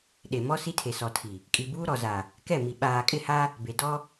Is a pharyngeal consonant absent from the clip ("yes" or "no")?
yes